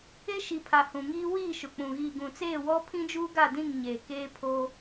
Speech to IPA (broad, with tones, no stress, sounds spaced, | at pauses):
e˦ ʃ i˨ pʰ a˨ h ũ˨ ŋ iː˦ w iː˦˨ ʃ ʊ˨ k͡p ũ˨ ɣ iː˨ ɡ ũ˨ t͡s eː˦˨ w ɔ˦ pʰ ĩ˦ d͡ʒ uː˦ ɡ a˦˨ d ĩ˦˨ ŋ ɲ eː˨ k eː˦ pʰ o˦